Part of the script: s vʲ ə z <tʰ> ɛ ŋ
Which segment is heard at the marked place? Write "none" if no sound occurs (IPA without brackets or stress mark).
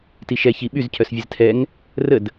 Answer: tʰ